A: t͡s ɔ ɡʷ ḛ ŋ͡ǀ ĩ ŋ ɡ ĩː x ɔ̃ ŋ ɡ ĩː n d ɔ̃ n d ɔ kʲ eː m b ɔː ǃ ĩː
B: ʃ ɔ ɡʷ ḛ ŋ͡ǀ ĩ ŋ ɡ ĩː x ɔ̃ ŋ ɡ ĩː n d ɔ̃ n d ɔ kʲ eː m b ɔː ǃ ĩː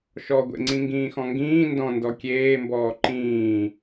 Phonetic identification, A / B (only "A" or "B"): B